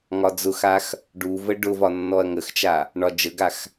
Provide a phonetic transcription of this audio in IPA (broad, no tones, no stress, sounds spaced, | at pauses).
ŋ ɒ d͡z ʊ x a x | ɖ u v ə ɖ ʊ v ɒ nː ɔ ɐ̯ ŋ ə x t͡ʃ a | ɳ ɒ d͡ʒ ə ɡ a x